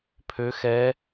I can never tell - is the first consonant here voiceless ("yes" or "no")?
yes